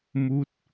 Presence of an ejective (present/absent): absent